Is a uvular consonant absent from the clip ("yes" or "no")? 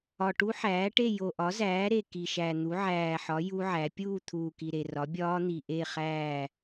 no